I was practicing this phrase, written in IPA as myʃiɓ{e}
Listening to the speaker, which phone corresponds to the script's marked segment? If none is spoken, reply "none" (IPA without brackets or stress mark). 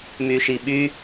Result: y